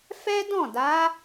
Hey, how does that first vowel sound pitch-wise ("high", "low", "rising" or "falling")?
high